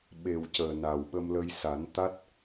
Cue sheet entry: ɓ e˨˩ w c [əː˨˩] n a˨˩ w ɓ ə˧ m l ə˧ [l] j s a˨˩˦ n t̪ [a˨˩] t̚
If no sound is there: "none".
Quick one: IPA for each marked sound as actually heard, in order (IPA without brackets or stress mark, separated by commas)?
əː˨˩, none, a˦˥